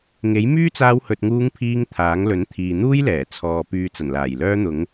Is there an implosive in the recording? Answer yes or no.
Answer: no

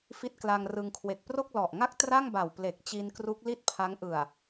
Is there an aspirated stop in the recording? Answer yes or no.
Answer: yes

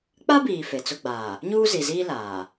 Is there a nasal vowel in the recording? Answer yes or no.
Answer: no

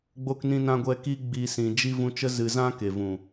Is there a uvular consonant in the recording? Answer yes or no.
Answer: no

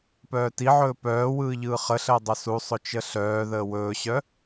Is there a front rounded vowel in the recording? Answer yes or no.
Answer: yes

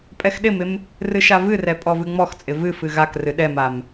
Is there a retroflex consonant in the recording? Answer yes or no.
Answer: no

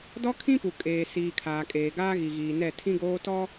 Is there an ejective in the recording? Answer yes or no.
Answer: yes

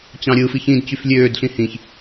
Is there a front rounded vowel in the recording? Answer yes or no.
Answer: yes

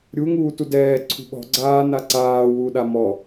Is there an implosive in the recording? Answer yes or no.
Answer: yes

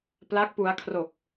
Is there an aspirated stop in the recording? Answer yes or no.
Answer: yes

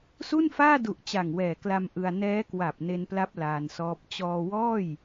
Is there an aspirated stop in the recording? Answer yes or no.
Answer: no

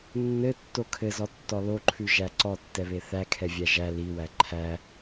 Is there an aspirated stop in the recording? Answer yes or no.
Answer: yes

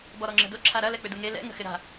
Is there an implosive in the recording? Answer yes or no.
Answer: no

